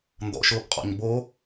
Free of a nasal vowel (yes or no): yes